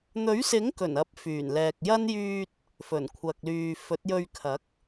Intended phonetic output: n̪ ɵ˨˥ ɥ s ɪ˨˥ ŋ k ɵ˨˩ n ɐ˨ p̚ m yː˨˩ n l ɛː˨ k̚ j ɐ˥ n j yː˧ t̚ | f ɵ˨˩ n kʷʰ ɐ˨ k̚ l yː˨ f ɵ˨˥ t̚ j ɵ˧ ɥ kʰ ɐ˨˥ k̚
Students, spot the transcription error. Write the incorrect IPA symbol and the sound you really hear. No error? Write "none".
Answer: m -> f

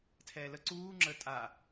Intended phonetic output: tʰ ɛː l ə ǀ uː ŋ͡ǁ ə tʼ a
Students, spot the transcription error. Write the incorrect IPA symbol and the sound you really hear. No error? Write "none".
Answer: none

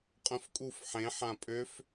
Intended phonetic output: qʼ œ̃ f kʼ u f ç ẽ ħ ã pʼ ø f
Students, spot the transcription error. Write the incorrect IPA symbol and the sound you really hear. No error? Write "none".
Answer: ç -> ħ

